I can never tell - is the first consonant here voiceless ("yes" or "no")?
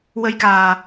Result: no